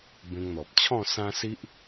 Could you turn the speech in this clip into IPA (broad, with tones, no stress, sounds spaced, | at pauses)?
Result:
b ẽ˧ ŋ n̪ ɔ˨ p̚ t͡ɕʰ ɔ̃˥˧ s ã˦ s i˦ ʔ